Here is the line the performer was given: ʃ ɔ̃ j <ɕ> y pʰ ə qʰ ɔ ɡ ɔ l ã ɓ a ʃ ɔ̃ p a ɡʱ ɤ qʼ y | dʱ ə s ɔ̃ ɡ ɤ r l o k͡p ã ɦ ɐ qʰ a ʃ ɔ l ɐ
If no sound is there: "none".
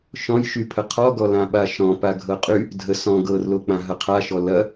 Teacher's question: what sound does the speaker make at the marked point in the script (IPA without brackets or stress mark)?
ʃ